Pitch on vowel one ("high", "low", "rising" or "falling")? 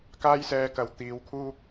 high